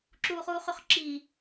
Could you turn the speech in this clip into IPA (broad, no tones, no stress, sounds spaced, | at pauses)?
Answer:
ǁ uː χ uː χ y χ ǁ iː